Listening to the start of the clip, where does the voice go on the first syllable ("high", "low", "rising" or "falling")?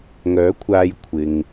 rising